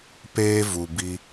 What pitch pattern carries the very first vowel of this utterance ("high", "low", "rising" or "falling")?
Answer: high